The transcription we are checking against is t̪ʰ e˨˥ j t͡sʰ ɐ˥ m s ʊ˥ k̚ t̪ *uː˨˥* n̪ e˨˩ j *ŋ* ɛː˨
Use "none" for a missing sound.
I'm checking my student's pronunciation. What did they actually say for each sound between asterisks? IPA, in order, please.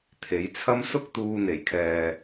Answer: uː˧, kʰ

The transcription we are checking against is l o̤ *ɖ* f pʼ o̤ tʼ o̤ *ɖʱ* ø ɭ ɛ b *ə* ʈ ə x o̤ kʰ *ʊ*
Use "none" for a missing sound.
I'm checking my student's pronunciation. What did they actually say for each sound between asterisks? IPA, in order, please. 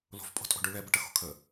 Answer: none, ɖ, ə, ə

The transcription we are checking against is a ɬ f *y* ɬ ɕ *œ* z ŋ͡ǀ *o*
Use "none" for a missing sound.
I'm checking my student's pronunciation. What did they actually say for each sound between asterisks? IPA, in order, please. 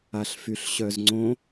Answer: y, œ, õ

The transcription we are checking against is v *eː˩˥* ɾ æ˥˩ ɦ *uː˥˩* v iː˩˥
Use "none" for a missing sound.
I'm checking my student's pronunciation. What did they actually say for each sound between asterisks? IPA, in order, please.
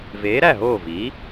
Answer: eː˩˥, oː˥˩

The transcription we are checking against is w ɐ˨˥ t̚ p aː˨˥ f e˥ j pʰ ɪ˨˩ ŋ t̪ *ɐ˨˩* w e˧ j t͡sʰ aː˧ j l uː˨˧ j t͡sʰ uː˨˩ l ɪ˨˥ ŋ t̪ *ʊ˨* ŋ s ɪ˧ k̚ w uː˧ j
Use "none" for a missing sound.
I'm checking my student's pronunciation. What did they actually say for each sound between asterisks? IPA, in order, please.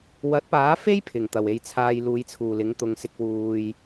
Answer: ɐ˨˩, ʊ˨

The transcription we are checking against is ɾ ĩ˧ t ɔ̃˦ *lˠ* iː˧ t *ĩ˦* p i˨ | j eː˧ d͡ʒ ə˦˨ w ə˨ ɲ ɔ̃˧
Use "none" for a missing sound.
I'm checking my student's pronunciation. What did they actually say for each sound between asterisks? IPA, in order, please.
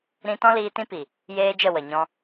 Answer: l, ĩ˦

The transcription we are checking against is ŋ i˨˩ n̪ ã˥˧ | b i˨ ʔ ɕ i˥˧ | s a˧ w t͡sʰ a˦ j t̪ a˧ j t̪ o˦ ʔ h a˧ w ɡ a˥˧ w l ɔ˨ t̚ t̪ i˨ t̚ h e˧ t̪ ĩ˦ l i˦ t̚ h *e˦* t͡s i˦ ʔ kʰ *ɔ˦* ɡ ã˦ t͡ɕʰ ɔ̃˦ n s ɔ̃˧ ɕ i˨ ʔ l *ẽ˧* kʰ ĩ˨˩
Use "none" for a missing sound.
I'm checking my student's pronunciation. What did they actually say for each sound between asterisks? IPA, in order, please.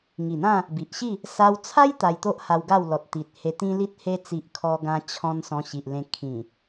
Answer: e˦, ɔ˦, ẽ˧

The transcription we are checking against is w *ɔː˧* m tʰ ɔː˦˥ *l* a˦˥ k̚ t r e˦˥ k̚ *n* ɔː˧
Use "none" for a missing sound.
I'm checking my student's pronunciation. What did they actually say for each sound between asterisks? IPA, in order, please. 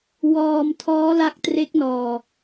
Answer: ɔː˧, l, n

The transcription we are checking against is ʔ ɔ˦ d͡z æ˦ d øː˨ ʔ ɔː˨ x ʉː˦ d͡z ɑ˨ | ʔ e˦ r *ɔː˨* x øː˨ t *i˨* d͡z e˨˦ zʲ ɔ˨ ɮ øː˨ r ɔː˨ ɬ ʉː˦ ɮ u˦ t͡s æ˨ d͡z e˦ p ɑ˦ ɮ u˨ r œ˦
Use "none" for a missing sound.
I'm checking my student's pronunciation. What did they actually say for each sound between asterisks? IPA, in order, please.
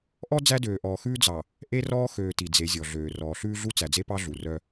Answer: ɔː˦, i˨

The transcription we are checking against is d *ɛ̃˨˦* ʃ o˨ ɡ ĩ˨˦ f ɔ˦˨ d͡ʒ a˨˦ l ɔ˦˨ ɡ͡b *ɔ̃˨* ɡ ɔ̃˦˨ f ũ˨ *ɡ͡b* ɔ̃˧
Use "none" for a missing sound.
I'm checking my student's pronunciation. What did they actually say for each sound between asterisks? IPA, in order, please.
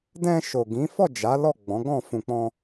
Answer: ɛ̃˧, ɔ̃˨˦, k͡p

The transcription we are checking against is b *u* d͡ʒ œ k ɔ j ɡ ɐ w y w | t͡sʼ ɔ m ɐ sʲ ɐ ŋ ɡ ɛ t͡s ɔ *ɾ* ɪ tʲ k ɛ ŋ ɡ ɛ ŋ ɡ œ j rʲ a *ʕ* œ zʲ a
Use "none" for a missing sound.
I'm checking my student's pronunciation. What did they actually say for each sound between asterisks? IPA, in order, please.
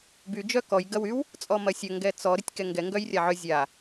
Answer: y, ɾ, ʕ

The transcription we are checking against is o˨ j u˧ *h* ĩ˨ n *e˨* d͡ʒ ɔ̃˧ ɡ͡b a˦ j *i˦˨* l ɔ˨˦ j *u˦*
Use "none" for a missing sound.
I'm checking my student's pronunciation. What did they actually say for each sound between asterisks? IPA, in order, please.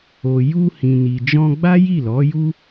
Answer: h, i˨, i˦˨, u˦

